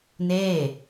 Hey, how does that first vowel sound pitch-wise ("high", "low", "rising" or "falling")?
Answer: falling